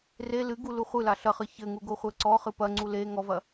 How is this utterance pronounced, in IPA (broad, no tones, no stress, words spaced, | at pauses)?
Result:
re lɨɡu luχʷɨla ɬɐχɨ çɘŋu ɡoχʷɛǀɔχɨ pɐŋ͡ǀu le ŋɔvɐ